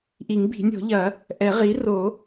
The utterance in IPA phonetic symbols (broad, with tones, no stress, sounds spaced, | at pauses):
ʔ i˨˩˦ ŋ b i̤˨˩˦ nʲ ɔ̤˨˩˦ ʎ ɐ˨˩˦ | ʔ ɛ˨˩˦ ʁ i˩˥ r o˨˩˦